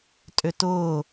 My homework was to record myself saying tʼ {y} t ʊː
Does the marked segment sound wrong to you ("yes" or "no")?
yes